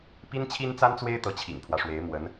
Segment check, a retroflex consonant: present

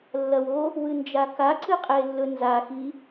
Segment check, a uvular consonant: present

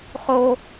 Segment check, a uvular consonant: present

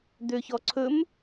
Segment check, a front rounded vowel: present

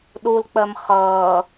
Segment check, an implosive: present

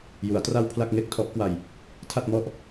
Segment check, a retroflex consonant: absent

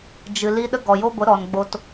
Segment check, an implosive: present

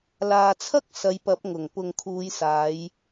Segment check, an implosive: absent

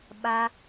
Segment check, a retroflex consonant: absent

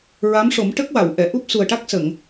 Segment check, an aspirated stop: absent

